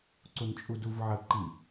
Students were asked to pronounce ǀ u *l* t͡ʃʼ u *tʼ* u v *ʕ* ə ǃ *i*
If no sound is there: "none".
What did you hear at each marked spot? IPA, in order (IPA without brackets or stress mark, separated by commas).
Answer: n, d, ʕ, i